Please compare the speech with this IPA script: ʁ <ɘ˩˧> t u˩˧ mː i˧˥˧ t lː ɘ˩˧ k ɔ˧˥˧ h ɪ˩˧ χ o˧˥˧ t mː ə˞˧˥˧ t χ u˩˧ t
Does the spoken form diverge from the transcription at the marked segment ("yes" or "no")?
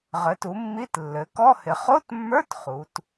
no